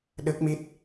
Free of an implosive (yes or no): no